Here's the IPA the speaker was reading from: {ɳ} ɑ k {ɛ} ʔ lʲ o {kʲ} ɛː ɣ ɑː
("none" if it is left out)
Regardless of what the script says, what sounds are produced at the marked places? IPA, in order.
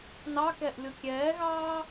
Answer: n, ɛ, kʲ

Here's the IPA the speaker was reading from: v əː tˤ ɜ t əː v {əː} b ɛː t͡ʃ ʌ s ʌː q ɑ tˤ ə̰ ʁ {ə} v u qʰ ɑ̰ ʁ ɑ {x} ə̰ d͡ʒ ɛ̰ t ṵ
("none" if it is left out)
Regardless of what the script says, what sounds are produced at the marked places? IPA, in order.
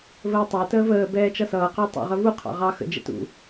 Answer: əː, ə, x

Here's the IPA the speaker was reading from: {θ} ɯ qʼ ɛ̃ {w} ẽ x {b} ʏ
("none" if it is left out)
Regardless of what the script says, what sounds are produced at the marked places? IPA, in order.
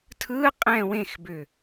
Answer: tʰ, w, b

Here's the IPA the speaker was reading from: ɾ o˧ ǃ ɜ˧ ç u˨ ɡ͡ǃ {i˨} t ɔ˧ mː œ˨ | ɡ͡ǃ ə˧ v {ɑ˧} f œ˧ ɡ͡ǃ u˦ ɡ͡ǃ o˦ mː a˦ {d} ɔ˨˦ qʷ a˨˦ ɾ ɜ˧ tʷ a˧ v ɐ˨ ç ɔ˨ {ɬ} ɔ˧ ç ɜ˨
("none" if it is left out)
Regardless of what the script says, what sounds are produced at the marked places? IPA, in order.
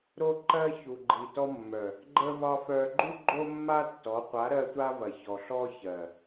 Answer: i˨, ɑ˧, tː, ɬ

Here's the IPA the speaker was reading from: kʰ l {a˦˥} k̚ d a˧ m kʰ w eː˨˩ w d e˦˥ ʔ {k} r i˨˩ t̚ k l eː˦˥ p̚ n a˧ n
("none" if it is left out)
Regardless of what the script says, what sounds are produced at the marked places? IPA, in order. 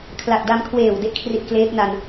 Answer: a˨˩, kʰ

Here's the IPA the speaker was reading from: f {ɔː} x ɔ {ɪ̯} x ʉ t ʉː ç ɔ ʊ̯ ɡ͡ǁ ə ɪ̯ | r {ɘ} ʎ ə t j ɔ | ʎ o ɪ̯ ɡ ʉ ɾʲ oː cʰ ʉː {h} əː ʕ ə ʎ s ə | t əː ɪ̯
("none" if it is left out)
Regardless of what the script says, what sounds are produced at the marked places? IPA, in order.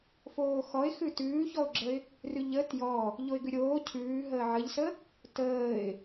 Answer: oː, ɪ̯, ʉ, ɦ

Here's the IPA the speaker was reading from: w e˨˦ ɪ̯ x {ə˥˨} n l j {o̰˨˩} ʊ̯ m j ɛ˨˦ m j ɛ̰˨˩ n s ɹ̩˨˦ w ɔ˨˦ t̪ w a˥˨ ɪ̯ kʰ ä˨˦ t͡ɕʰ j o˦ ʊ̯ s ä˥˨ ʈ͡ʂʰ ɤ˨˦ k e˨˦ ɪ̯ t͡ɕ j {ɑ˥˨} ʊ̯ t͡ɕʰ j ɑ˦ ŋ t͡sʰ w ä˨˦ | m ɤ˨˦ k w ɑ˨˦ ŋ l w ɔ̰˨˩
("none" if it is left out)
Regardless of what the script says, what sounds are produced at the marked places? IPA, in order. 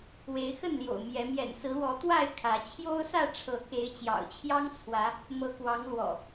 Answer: ə˥˨, o̰˨˩, ɑ̰˨˩

